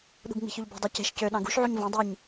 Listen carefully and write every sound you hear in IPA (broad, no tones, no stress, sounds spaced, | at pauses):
ɗ ṳ ɡ ŋ͡m i̤ ç ø ʎ b ṳ dˤ e c e̤ ʃ c ø ɗ ɑ̃ ɡ ṳ ʃ ʕ u ɲ v õ dˤ i ɲ